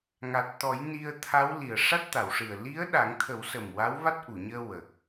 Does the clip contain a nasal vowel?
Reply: no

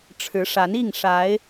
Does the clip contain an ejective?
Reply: no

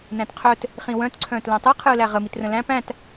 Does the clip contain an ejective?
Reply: no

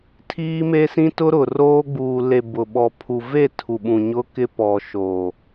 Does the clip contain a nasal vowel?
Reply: yes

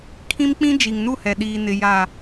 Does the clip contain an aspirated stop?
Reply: yes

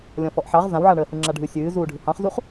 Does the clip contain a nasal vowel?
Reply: yes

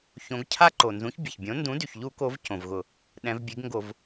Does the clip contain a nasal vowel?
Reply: yes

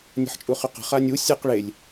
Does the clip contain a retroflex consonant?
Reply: yes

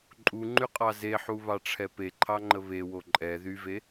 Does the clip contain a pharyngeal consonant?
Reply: yes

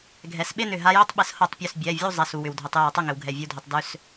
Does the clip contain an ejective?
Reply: no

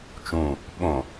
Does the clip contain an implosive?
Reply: yes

